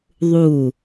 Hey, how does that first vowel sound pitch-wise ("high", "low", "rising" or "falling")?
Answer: falling